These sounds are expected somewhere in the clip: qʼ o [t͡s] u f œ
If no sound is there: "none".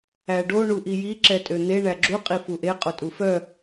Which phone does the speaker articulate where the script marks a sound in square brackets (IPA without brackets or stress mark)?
tʼ